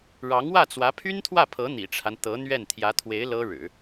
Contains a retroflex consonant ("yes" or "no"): yes